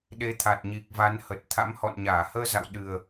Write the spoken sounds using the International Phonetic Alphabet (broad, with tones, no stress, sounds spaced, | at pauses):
ɗ e˨˦ t̪ʰ a˨˩ t̚ ɲ i˨˩ k̚ v a˨˦ n h ə˨˩ t̚ t̪ʰ a̰˧˥ m h ɔ̰˧˨ n ɲ aː˧˩ h əː˧ z a̰˧˨ w ɗ ɨ˨˩ ə̯